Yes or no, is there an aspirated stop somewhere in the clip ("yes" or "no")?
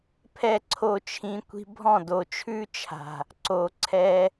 yes